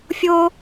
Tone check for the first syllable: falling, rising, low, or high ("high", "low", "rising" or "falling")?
high